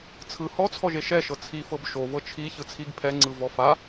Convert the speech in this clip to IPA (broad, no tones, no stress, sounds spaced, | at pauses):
t͡sʰ ɯ h ɔ t͡sʰ ɔ ʒ e ʃ ɛ ʃ ɤ t͡sʰ i f ɤ b ʃ o v ɤ t͡ʃʰ i ç ɯ t͡sʰ i ɡ pʰ ɛ ŋ͡ǀ ɯ v ɔ f a